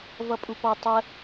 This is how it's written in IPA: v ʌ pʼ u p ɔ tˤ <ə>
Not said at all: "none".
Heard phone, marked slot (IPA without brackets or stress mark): ə